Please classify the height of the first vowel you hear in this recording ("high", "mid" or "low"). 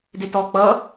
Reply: mid